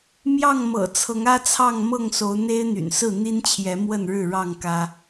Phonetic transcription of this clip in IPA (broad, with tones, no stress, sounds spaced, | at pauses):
m j ɑ˥˨ ŋ m ɤ̰˨˩ t͡sʰ ɤ˨˦ ŋ ä˦ t͡sʰ ɑ˥˨ ŋ m ɤ˥˨ ŋ s o˨˦ ʊ̯ n̪ e˦ ɪ̯ n̪ y̰˨˩ n s ɹ̩˥˨ n̪ i˦ n t͡ɕʰ j ɛ˨˦ m w ə˥˨ n ɻ ɻ̩˥˨ ɻ ɑ˥˨ ŋ k ä˦